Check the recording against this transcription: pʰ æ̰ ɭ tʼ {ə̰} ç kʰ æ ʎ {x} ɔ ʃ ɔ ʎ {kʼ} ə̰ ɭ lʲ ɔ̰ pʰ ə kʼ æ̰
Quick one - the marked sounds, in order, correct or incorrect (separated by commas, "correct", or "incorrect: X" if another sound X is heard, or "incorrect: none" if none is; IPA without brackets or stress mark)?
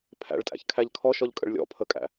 incorrect: æ̰, incorrect: kʰ, correct